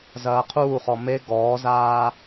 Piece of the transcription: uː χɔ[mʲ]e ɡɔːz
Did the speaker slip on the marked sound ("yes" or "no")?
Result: yes